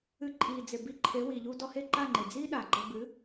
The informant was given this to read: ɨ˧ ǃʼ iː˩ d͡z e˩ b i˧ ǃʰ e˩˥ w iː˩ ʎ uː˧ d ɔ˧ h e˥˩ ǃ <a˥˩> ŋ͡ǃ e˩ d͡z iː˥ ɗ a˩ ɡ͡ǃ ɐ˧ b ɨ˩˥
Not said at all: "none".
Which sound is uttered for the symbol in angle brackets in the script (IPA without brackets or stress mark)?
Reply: a˥˩